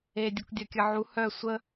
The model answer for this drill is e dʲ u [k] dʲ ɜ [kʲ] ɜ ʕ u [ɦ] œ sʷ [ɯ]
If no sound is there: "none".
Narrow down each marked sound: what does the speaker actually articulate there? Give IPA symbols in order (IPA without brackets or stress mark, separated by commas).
k, kʲ, h, ə